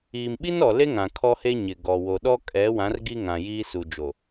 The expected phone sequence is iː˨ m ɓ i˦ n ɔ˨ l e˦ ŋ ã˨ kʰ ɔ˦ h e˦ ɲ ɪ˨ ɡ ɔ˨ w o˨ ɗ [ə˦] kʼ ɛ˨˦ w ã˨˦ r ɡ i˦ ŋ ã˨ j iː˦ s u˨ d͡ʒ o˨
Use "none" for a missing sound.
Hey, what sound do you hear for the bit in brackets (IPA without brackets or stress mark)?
ɔ˦